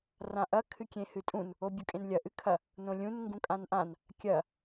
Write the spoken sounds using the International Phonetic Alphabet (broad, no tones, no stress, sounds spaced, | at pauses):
r ã ʔ ɐ kʰ ɨ kʲ ẽ h ɨ tʼ ũ n | o bʲ u kʼ ẽ n lʲ ɐ ʔ ɨ kʰ ɐ | n õ lʲ ũ n ŋ ɡ ũ kʼ ã n ʔ ã n | kʲ ɐ